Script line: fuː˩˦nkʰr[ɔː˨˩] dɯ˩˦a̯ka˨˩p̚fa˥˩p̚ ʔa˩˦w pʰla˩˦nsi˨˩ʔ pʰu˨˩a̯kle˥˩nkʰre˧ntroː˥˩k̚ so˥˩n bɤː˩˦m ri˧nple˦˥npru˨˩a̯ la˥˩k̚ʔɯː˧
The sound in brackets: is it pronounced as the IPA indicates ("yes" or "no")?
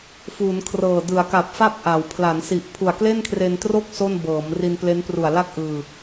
no